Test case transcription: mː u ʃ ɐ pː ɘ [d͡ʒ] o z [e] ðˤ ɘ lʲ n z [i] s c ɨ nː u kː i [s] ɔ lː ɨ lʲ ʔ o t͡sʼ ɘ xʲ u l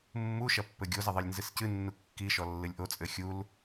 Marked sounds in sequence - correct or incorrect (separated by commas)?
incorrect, incorrect, incorrect, incorrect